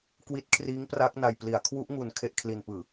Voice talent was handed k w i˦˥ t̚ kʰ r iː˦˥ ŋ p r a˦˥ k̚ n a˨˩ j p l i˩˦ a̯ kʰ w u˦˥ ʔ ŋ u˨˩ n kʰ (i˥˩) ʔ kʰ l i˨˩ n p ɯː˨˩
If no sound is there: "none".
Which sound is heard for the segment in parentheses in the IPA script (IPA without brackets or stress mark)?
e˥˩